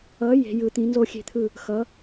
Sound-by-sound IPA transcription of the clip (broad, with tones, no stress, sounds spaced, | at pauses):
ʌ˨˥ j e̤˨˥ j ɯ˨˥ t̪ ĩ˨˥ n z o˥˨ xʲ e̤˥˨ t̪ʰ ɯ˥˨ | x ʌ˨˥